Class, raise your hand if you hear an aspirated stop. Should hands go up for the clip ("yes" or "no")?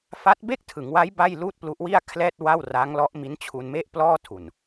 yes